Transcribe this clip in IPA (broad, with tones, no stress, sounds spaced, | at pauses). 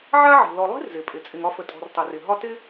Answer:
ʕ a˥ ʕ i̤˩ l ɔ˨ lˠ i̤˥ r z ɪ˩ pʼ ɪ˩ t͡sʼ ɪ˨ ŋ ɒ˦ f ə˨ tʼ ɔ̤˨ r tˤ e˩ r ɪ˩ ɦ ɒ˦ t ɪ˥